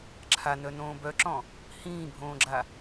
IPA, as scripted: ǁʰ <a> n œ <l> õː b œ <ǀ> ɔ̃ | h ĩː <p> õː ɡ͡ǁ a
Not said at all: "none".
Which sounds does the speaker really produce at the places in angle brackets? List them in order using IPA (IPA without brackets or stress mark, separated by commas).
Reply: a, n, ǁ, bʱ